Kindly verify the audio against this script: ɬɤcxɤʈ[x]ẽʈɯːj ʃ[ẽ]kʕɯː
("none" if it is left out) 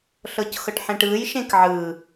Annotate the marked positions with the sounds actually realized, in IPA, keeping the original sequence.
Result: ħ, ẽ

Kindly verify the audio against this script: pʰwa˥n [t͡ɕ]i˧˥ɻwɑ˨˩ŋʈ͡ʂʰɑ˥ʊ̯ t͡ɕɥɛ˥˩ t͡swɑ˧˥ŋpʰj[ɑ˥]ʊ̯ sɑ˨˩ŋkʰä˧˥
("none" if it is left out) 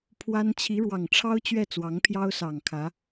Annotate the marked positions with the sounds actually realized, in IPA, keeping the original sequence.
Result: t͡ɕʰ, ɑ˥

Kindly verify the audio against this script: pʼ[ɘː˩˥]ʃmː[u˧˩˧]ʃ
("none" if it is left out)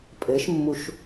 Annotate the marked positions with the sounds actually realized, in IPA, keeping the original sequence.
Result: ɘː˩˥, u˧˩˧

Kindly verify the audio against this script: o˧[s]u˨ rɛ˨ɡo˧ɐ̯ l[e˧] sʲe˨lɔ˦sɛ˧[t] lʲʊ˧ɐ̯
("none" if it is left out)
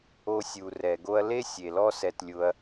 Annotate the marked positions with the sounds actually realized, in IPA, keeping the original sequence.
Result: sʲ, e˦, t

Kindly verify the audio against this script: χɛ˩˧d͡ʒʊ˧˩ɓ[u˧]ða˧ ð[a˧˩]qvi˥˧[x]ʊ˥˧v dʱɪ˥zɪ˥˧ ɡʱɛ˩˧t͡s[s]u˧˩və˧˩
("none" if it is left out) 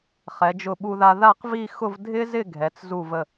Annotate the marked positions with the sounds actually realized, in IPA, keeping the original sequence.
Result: u˧, a˥˧, x, z

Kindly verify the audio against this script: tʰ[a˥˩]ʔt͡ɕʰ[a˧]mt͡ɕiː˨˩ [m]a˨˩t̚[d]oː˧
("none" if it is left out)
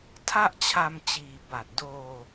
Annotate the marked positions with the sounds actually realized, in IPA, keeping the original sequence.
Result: a˥˩, a˧, b, d

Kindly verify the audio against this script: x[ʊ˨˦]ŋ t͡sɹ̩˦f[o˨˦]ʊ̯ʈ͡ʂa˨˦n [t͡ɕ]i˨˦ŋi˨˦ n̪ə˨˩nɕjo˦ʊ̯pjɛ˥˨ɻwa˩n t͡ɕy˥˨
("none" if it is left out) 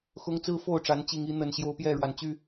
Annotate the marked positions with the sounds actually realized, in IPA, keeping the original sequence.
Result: ʊ˦, o˥˨, t͡ɕ

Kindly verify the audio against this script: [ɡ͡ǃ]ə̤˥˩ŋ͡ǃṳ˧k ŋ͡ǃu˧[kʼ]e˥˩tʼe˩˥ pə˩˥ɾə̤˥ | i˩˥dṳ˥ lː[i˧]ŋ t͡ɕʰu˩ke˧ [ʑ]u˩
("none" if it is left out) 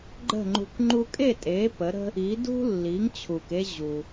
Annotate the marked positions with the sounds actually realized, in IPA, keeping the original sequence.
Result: ɡ͡ǃ, kʼ, i˩˥, ʑ

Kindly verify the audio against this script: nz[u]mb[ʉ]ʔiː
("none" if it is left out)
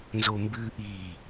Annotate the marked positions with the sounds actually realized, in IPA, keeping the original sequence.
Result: o, ʉ

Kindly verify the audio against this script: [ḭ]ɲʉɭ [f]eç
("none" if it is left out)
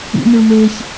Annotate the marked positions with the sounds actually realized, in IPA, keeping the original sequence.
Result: ḭ, m

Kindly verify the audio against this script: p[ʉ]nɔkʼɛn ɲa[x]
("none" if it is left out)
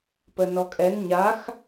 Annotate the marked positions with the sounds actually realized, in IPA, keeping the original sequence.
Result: ə, x

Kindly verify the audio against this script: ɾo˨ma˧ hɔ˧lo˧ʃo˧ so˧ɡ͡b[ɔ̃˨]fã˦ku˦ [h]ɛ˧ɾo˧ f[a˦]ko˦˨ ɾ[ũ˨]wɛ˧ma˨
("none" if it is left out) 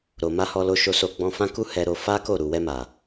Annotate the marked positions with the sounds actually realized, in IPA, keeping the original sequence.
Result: ɔ̃˧, h, a˦, u˨

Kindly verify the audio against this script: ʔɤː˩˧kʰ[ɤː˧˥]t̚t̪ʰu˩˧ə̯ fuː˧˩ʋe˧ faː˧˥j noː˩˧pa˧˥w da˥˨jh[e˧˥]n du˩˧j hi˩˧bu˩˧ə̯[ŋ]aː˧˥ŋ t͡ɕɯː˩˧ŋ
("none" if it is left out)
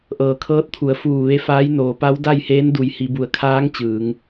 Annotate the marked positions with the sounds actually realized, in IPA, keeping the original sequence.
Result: ɤː˧˥, eː˧˥, kʰ

